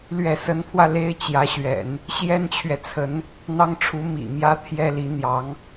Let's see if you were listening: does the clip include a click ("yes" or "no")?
no